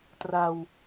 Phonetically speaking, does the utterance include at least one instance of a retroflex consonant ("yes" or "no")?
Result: no